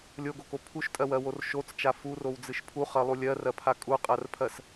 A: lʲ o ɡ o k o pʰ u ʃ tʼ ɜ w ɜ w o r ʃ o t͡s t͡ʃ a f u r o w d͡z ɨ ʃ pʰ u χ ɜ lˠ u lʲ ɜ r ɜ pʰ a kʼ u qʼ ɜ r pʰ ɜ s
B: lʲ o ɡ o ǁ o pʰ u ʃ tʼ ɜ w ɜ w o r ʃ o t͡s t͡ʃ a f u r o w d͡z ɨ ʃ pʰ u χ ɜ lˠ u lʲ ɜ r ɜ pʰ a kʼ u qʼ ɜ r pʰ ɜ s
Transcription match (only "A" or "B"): A